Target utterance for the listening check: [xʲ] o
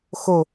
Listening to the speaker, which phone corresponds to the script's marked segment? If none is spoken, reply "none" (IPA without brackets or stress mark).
x